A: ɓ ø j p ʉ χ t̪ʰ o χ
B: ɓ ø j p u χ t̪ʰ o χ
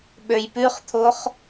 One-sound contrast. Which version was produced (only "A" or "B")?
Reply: A